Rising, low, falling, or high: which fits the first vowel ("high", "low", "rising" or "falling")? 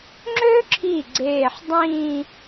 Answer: high